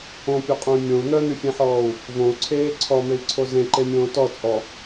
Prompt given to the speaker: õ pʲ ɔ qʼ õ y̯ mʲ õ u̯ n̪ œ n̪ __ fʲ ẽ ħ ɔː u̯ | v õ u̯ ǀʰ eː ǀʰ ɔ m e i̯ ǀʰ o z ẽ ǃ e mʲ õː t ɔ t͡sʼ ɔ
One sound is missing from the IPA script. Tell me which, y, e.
y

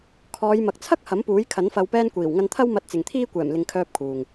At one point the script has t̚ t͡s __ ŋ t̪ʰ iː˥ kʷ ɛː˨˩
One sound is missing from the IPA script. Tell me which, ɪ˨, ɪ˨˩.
ɪ˨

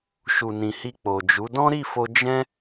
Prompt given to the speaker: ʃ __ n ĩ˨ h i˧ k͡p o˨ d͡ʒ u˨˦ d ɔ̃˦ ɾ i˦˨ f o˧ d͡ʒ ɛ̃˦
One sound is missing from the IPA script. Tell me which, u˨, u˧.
u˨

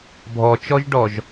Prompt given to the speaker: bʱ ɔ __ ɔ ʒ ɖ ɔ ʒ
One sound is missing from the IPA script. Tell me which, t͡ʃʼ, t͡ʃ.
t͡ʃ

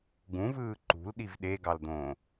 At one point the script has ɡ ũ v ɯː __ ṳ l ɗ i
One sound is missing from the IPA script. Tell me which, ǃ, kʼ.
ǃ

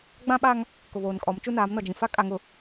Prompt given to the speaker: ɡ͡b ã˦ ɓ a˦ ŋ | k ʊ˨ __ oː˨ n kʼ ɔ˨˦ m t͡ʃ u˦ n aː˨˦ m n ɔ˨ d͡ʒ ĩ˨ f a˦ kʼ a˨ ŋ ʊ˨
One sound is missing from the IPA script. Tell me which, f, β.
β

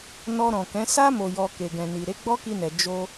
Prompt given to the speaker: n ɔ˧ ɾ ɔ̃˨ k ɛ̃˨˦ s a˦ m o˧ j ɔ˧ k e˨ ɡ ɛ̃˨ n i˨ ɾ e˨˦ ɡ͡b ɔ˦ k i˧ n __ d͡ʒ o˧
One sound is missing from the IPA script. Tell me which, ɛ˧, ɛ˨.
ɛ˨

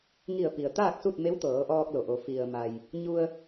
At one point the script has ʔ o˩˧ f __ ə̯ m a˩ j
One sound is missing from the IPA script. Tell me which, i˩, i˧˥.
i˩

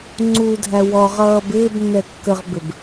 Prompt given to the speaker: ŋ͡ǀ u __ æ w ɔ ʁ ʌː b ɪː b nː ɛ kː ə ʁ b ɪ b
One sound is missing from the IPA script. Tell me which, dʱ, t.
dʱ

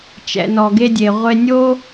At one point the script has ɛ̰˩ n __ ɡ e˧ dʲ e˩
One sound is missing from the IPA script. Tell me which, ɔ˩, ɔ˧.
ɔ˩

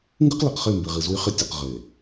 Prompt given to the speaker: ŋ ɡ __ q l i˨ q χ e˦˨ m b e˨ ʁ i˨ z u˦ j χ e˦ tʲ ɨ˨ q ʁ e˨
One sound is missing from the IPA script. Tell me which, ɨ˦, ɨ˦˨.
ɨ˦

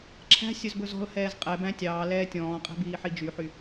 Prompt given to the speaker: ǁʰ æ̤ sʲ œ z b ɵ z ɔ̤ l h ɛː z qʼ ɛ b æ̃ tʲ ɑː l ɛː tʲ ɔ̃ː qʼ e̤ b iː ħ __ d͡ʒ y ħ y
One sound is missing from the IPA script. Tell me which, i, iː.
i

